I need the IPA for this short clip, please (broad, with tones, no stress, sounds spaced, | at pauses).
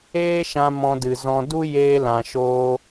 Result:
eː˦ ʃ ã˧ m ɔ̃˧ d ɨ˨ z ɔ̃˧ d u˦ j eː˧ l ã˨ ʃ oː˧